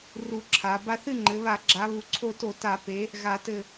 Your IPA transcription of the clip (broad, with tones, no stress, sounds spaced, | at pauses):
r u˧ ǁʰ a˩˧ b a˧ θ ɨ˥˨ ŋ͡ǃ ɘ˩˧ β a˧˩˧ ɡ͡ǁ a˩˧ β u˩˧ ǀʰ o˧ t o˧˩˧ t a˧˩˧ p e˩˧ | ɣ a˧˩˧ t ɘ˧˩